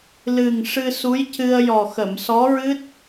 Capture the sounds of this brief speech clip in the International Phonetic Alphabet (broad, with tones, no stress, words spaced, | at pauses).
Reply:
lɨ˨˩ŋ ʂɨ˧su˧˥jcɨ˧ə̯ jɔ˨˩xə˨˩˨msɔ˧˥ɹɨ˦˥t̚